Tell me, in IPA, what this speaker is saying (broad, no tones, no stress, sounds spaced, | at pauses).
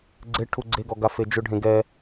ɡ͡ǀ e ʈʰ u ɡ͡ǀ e ɡ ɔ ɡ a f e d͡ʒ ʊ ɖʱ ẽ ɡ ɛ